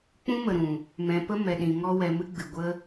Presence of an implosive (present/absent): present